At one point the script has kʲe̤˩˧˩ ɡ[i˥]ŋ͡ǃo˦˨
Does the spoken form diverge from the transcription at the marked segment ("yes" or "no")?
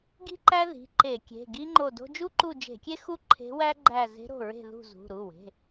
no